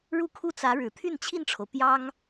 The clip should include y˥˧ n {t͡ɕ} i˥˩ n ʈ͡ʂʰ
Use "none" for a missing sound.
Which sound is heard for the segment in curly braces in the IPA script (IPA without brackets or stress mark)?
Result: t͡ɕʰ